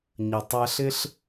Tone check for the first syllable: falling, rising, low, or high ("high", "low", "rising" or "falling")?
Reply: low